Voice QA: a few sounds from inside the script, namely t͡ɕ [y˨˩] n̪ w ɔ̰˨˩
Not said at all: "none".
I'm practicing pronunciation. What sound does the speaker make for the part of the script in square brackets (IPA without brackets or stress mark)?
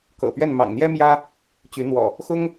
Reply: y˨˦